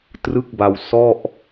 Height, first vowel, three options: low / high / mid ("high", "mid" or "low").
high